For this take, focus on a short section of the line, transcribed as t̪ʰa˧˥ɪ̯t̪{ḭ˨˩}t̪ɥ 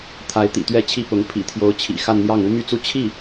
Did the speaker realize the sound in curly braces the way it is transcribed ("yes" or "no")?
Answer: yes